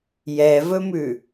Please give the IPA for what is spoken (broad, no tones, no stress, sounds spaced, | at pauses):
j ɛ v ɵ m ʉ